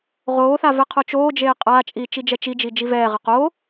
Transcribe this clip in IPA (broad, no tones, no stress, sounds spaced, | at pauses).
ʁ oː θ a v ɛ qʰ o t͡ʃ oː d͡ʒ eː qʼ aː t͡ʃʼ iː t͡ʃ i d͡ʒ ɛ t͡ʃ i d͡ʒ i d͡ʒ i v ɛː ʁ ʌ q oː